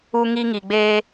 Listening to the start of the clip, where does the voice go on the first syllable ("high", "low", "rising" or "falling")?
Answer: high